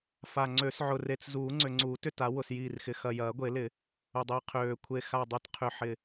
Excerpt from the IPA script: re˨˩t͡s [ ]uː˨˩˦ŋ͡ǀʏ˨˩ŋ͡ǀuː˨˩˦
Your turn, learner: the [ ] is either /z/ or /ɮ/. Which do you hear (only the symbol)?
z